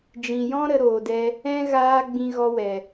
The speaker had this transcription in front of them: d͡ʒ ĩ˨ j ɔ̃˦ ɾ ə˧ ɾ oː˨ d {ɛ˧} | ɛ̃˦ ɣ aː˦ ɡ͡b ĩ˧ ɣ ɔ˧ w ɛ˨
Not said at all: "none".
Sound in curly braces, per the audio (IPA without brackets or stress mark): ɛ˧